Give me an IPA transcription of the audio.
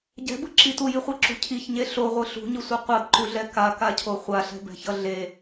ɟ ɛ̤ b ɯ ǁ i t u j i χʷ i ǁ ṳ cʰ i ç ɲ e ɬ o ʁʷ ɯ ɬ ṳ ɲ ɯ sʷ ɯ qʷ a b ǃ u ɮ ɛ k a k a cʰ o χʷ a ɬ ɛ̤ b ɛ̤ ç ʌ ɮ e

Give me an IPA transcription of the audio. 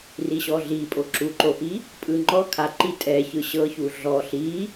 r i ɕ ɔ ɮ i pʼ o ǁ u ǃ o ʔ i | pʼ ɯ ŋ͡ǃ ɔ kʰ a ǃ i tʼ ɛ ç ɯ ɕ ɤ ç u ɮ ɔ ɬ i

